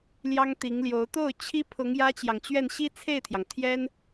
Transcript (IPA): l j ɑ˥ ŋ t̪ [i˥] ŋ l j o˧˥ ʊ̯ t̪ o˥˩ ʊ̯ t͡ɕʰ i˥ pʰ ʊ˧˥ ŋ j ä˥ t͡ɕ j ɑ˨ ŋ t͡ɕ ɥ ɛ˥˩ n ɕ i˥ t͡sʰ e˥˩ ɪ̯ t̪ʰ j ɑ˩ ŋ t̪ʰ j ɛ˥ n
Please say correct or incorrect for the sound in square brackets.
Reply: incorrect